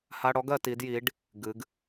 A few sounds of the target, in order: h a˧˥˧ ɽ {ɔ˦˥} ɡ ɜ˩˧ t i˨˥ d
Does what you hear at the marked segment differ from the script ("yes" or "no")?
no